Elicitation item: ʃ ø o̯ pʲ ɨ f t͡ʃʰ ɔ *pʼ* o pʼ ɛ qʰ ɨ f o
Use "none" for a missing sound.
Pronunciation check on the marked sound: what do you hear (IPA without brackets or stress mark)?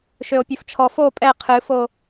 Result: f